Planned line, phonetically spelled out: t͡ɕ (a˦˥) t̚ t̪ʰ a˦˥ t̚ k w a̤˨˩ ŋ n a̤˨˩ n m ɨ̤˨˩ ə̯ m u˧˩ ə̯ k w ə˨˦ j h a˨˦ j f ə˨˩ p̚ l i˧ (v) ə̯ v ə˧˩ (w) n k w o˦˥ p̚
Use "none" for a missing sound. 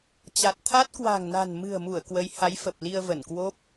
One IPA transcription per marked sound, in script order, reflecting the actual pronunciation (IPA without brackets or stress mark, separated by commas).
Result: a˨˩, none, none